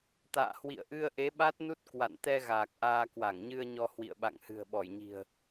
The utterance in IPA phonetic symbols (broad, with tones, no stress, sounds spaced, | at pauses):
t̪ a̰ː˧˨ h w ḭ˧˨ ə̯ ʔ ɨ˧ ə̯ ʔ e˨˦ ɓ a˦˥ t̚ n u˦˥ t̚ k w a̰˧˨ n t̪ ɛ˧ ɣ aː˨˩ k̚ ʔ aː˧ k w a˧˩ ŋ ɲ ɨ˧ ə̯ ɲ ɔ˧ h w ḭ˧˨ ə̯ ɓ a̰˧˨ ŋ h ɨ̤˨˩ ə̯ ɓ ɔ˧˩ j ɲ i̤˨˩ ə̯